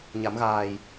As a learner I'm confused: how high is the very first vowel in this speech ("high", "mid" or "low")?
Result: low